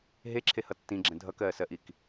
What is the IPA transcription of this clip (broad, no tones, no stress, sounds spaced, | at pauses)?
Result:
ɦ e ǁʰ e h ʌ tː ĩ ɡ͡ǁ ɛ̃ dʱ ʌ k ɜː s ɜ ʔ i k